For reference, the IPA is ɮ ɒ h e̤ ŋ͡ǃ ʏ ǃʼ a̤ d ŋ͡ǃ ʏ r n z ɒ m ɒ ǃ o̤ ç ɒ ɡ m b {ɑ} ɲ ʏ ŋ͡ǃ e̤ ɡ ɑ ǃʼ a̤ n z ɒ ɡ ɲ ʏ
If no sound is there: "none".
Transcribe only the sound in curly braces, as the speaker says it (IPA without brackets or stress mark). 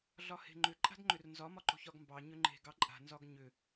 ɑ